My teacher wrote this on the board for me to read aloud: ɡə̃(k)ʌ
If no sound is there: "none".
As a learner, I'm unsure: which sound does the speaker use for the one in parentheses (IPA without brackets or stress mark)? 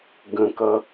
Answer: k